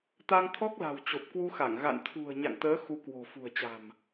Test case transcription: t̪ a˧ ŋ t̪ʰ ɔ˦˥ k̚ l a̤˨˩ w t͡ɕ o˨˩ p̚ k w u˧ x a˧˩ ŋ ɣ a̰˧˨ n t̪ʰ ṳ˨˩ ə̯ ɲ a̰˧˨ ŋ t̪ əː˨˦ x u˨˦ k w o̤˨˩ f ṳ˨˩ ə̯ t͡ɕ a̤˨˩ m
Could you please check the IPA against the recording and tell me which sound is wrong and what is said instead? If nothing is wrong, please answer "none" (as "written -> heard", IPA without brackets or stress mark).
none